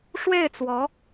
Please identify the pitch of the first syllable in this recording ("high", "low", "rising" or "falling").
falling